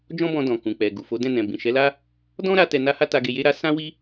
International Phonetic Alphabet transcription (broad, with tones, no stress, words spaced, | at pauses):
d͡ʒɔ̃˦bɔ̃˧dɔ̃˨ kũ˨k͡pɛ˨ɡu˨fo˨˦ dɛ̃˦˨nɛ̃˨ bĩ˨ ʃɛ˨˦la˦ | dɔ̃˦ɾa˧ tɛ˧na˦ha˦ta˧ ɡe˧je˦ɾa˦ sã˦wi˦